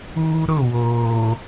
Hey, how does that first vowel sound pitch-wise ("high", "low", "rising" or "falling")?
high